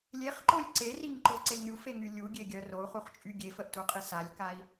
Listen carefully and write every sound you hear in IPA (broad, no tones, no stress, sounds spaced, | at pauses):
lʲ e χ ǃ o lʲ ǀ e r i ŋ ǃ o ǀ e ŋ ɾʲ u f e ŋ y lʲ u ɡʲ e ɡʲ œ r o u̯ χ u χ t͡ʃʼ y ɡʲ e f ə ʔ t u qʼ i s a lʲ k a i̯